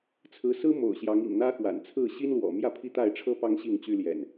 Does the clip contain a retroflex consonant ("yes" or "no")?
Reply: yes